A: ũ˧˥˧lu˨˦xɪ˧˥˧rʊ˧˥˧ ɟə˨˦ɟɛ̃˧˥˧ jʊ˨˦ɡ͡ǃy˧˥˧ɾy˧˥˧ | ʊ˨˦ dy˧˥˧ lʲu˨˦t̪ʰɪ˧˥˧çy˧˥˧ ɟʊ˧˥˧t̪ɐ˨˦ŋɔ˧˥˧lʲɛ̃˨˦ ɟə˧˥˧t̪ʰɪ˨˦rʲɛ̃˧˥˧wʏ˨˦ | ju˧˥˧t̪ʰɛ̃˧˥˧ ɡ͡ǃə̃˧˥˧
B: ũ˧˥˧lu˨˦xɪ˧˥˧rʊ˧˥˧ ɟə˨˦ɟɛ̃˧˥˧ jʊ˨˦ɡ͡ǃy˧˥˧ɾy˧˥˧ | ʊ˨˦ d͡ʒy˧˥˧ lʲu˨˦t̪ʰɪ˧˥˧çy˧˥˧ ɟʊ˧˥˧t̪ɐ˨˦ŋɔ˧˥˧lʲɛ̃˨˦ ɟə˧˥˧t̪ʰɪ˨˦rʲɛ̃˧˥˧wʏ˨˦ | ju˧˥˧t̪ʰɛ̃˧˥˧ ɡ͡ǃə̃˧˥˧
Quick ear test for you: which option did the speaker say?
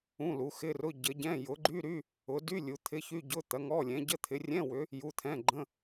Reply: A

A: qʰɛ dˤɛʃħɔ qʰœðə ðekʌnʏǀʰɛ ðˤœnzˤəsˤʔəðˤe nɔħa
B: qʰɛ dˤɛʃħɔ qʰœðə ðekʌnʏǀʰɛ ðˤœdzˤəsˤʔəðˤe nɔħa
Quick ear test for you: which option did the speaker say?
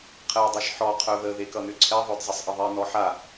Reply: B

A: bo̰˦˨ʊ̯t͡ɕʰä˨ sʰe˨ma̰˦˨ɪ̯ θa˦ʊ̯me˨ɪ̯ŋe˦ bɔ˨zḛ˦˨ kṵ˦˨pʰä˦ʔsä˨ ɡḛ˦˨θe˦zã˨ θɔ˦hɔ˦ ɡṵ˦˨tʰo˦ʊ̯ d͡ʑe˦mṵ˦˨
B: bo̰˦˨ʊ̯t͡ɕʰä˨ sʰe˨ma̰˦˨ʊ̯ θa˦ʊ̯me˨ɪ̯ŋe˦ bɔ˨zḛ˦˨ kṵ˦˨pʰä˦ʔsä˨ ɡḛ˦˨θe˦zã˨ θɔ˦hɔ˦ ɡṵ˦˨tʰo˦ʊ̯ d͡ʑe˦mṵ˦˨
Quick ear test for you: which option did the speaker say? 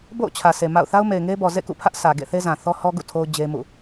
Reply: B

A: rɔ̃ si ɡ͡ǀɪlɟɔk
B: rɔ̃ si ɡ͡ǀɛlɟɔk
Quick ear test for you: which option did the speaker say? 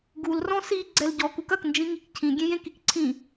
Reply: B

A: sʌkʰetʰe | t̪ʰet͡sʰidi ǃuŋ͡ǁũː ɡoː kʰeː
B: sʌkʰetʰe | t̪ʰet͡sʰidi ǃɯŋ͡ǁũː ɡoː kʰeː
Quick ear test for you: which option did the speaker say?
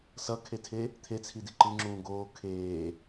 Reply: B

